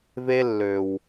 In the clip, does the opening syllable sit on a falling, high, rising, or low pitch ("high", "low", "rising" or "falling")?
high